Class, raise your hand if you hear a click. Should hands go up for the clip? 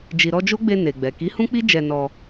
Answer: no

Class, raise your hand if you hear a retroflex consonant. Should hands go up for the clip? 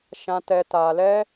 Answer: no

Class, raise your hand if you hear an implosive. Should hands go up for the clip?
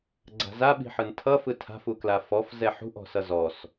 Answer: yes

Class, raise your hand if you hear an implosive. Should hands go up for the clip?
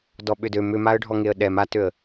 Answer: yes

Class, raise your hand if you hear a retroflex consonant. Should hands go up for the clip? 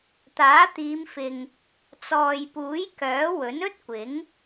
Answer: no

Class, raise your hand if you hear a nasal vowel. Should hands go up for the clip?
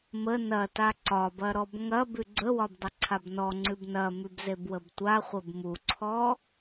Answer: no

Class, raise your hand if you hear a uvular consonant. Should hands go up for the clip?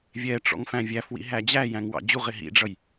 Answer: yes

